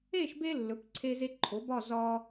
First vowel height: mid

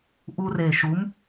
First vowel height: high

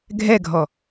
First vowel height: mid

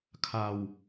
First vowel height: low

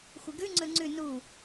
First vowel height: high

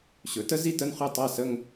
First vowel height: mid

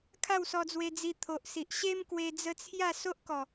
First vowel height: low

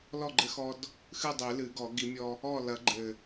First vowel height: mid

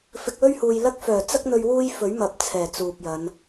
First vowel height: high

